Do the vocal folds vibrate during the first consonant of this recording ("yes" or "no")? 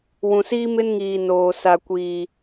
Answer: yes